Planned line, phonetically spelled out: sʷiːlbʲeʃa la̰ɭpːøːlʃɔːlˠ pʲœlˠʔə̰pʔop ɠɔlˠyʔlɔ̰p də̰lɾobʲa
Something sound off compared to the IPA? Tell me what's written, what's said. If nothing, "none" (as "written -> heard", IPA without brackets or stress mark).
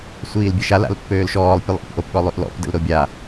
ɭ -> l